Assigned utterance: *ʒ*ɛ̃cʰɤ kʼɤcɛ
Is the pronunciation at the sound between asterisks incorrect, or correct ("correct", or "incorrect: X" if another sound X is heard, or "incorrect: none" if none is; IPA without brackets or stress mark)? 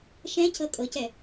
incorrect: ʃ